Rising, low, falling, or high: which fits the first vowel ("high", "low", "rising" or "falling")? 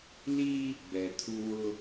high